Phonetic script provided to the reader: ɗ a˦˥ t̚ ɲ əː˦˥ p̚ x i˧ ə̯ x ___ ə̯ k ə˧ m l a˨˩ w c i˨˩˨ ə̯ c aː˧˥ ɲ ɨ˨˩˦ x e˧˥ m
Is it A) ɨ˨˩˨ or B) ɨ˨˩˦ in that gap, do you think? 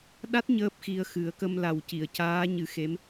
B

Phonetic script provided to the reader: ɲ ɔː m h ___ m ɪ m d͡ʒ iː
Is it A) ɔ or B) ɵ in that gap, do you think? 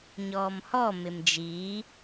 A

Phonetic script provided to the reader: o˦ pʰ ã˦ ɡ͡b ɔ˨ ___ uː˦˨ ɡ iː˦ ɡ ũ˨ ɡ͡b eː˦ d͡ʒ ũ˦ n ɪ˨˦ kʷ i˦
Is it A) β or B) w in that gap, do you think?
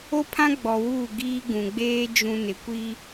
B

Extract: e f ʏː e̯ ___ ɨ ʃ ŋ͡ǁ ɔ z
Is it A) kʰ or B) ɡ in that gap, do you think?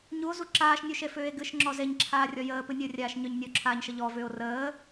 B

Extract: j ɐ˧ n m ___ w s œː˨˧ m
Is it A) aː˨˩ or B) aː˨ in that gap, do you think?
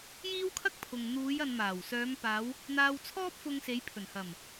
A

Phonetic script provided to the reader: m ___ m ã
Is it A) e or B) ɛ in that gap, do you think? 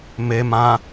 A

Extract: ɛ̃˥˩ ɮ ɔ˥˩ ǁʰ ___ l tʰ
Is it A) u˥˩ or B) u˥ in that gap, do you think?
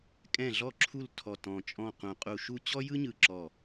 A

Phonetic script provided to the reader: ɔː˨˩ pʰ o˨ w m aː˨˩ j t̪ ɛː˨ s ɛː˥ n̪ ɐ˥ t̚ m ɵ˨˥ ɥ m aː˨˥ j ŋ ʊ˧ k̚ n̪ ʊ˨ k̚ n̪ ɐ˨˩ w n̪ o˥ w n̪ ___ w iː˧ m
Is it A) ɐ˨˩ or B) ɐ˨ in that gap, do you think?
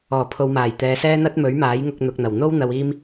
B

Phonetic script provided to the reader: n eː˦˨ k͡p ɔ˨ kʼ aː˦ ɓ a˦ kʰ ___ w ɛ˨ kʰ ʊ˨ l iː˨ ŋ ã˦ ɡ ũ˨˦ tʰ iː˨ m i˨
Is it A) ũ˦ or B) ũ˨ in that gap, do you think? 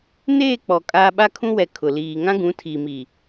A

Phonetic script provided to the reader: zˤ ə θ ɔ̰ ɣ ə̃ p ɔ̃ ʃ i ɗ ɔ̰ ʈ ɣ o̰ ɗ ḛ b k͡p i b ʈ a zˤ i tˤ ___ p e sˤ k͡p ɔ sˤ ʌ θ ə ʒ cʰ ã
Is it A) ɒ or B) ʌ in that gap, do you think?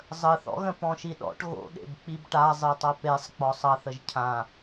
B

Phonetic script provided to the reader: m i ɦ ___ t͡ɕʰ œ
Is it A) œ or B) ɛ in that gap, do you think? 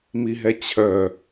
B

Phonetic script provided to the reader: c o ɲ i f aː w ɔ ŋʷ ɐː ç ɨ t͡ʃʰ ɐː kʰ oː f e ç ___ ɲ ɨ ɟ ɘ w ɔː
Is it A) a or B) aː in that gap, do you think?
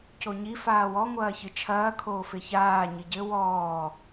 B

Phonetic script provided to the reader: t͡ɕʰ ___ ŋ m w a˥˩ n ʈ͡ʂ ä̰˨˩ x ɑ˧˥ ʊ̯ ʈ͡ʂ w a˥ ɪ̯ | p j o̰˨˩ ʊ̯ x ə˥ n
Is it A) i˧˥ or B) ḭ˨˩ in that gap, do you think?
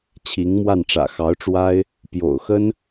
A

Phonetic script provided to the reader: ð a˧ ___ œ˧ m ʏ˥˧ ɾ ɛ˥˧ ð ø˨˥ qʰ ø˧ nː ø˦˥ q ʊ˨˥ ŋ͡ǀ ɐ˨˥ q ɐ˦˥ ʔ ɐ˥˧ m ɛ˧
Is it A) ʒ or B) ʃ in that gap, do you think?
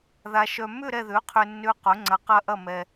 B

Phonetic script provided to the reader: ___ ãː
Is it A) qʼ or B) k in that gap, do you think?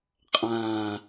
A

